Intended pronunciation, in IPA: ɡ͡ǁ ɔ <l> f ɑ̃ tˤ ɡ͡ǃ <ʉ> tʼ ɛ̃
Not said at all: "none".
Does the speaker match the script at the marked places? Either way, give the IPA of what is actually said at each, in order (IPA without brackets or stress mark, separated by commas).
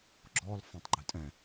l, ʉ